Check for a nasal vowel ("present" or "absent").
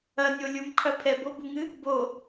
absent